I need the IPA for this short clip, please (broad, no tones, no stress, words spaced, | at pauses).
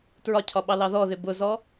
tɹɒcʰɒɓɑlɑ ðɔðɪ bʊzɔ